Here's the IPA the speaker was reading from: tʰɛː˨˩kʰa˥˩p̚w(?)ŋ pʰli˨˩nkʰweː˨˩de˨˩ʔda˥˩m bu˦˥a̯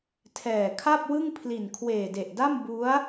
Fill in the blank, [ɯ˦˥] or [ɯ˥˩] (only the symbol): ɯ˥˩